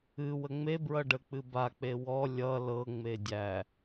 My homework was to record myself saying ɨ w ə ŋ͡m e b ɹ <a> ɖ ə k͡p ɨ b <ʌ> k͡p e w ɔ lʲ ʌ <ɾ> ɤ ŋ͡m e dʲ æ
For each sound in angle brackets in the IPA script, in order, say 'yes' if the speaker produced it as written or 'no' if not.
no, no, no

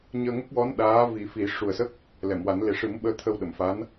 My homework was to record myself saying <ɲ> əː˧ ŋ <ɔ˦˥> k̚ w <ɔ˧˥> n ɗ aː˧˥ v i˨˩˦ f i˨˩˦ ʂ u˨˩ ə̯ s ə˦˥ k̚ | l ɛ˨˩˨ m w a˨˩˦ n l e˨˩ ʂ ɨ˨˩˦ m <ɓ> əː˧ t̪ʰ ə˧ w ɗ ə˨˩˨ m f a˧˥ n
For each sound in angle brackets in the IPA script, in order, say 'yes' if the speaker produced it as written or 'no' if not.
yes, no, yes, yes

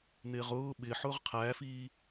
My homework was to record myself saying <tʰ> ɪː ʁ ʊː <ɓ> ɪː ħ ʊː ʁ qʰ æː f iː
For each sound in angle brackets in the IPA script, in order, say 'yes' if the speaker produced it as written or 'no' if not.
no, yes

